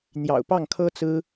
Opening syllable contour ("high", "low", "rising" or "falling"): low